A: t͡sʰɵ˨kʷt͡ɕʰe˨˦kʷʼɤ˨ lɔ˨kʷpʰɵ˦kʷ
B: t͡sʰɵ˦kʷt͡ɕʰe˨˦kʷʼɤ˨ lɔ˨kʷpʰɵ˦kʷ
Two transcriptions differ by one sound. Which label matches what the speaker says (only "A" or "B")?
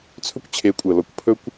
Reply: B